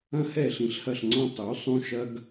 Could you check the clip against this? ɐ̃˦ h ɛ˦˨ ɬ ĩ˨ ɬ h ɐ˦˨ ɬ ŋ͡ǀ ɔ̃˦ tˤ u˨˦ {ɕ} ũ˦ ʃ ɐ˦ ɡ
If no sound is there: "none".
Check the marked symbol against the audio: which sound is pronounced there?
sˤ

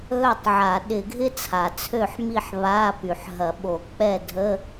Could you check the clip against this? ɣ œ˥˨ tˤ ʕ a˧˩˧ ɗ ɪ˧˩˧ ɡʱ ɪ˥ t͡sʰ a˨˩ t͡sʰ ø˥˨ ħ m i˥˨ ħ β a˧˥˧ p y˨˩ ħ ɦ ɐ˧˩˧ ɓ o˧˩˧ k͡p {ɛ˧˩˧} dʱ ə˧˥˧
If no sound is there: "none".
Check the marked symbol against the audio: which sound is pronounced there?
ɛ˥˨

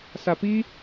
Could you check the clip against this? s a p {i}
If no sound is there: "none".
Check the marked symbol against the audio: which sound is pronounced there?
i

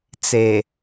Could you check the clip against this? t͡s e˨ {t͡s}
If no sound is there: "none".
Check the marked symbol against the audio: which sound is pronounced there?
none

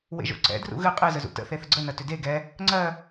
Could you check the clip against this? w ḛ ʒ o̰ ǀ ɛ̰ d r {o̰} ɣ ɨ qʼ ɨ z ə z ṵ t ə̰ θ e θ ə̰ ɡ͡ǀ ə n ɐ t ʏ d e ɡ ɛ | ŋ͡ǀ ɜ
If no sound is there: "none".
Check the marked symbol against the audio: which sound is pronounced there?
ṵ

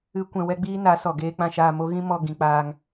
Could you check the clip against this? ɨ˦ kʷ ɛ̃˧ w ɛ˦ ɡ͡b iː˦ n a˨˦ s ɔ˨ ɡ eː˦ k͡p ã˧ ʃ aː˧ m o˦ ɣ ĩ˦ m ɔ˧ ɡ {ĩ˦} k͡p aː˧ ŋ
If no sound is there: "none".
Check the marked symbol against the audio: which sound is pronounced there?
ĩ˨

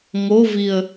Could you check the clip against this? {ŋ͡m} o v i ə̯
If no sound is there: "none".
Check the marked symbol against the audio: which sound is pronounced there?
ŋ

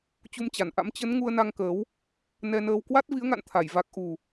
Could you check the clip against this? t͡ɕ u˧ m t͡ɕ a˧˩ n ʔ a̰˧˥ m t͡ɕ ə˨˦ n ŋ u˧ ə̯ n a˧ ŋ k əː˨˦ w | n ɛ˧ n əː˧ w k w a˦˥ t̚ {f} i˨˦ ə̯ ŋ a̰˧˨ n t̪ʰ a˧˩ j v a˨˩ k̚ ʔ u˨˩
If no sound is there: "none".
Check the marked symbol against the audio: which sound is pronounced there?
v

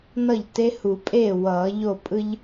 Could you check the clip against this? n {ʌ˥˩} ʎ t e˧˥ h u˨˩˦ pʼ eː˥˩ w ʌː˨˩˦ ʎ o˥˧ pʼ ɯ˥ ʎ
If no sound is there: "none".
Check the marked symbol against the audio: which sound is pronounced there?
ʌ˥˩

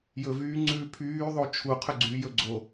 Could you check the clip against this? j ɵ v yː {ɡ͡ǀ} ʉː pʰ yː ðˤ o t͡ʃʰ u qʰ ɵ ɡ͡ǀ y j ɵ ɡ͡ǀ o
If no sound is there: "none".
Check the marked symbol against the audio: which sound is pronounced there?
ŋ͡ǀ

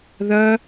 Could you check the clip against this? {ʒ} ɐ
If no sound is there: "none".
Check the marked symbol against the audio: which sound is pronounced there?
ð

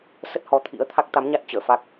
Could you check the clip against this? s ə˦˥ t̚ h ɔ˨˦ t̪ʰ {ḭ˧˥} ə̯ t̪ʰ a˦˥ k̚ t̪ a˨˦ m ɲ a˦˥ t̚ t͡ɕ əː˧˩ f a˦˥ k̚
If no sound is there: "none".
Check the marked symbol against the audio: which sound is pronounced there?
ḭ˧˥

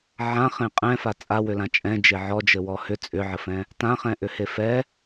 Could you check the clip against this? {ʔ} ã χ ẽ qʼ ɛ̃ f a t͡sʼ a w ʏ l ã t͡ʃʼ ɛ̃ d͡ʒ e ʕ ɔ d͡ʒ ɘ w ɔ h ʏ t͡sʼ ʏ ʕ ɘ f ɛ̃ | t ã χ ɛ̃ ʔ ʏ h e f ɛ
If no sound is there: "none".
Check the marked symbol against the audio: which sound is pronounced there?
ʕ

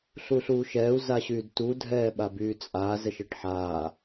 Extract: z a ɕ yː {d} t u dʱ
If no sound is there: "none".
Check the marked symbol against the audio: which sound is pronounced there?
d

